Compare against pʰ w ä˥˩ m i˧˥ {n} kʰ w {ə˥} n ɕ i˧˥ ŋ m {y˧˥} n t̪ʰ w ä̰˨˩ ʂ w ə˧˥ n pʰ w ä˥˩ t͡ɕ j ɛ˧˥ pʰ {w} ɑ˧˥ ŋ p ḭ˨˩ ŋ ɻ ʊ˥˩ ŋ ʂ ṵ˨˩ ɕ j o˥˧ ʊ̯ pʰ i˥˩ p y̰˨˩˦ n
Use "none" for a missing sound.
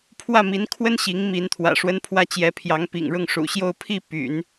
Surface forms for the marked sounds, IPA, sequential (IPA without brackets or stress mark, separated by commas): n, ə˥, i˧˥, j